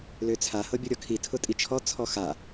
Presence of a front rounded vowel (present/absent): present